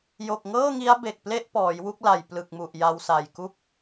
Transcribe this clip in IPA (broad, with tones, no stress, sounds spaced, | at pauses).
j o˨˩ k̚ ŋ ɤː˥˩ ŋ i˦˥ a̯ b e˨˩ k̚ p l e˥˩ ʔ p ɔː˩˦ j w u˥˩ k̚ l a˨˩ j p l ɯ˨˩ k̚ m u˨˩ ʔ j a˧ w s a˨˩ j k u˥˩ k̚